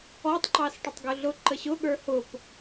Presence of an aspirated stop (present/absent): absent